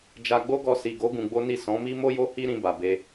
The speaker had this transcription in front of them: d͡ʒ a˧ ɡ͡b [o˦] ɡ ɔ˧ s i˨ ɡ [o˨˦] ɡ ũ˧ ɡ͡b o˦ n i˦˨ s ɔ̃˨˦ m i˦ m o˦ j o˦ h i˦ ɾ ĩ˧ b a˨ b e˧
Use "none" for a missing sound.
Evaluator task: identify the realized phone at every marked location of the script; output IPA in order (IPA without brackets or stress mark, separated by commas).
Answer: o˦, o˨˦